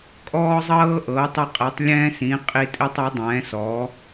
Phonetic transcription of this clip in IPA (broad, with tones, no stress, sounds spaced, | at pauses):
kʼ ɔː˦ zˤ ɤː˦ ʔ ɤː˨˥ tˤ ɛ˦ qʼ ɛ˨˥ tˤ lʲ ɛ̃ː˦ s ĩ˨˥ qʼ i˦ tʼ i˦ tˤ ɤ˨˥ dˤ ɛ̃ː˨˥ s ɔ˨˥